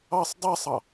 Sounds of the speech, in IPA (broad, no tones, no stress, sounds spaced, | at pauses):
ɑ sˤ dˤ a sˤ ɑ